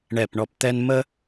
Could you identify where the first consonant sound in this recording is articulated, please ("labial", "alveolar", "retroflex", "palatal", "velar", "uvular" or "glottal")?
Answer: retroflex